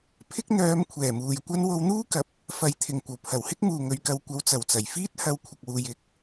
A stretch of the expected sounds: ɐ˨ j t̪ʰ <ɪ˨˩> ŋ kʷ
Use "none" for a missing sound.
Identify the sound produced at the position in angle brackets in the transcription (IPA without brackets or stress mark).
ɪ˨˩